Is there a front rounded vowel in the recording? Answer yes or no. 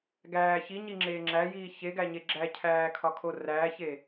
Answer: no